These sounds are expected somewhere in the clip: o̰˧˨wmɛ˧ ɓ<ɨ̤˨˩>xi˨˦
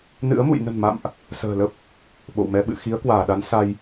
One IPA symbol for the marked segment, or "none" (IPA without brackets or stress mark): ɨ̰˧˨